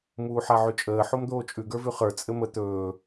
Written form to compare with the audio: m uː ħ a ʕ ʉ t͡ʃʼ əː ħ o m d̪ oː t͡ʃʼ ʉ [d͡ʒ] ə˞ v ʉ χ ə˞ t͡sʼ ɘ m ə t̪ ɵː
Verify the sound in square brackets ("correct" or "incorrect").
incorrect